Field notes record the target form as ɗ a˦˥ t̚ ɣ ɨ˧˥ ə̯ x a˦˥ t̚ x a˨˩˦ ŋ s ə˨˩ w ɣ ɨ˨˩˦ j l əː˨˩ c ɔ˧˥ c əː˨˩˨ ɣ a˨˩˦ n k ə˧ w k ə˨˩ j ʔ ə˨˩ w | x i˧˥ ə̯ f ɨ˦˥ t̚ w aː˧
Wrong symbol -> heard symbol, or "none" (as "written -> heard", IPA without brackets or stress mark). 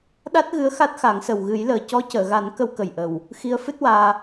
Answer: none